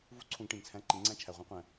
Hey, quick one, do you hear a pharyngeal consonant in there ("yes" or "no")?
no